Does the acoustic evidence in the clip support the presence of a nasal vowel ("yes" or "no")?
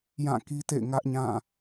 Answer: yes